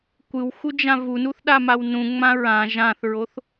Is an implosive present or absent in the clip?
present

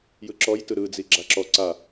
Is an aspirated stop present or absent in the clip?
absent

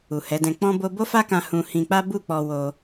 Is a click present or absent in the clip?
absent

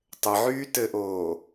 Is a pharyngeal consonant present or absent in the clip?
present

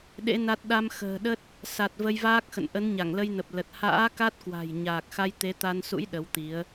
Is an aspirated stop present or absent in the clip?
absent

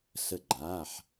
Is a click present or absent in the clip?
present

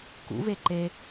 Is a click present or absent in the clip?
present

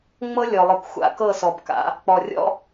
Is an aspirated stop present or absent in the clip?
absent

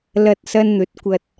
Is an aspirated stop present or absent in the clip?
absent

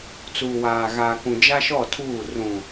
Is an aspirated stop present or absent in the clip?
present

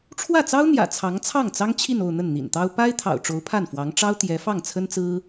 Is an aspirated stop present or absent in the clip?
present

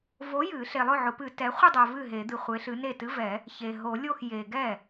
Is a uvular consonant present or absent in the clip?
present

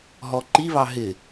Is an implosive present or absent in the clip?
absent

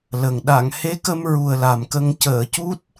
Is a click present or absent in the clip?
absent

